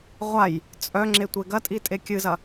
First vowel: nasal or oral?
oral